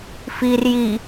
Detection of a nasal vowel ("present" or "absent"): absent